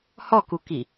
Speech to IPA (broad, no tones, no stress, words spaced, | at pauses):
hɔkuki